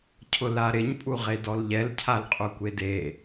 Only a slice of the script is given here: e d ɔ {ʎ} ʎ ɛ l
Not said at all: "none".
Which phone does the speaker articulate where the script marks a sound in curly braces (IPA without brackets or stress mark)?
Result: l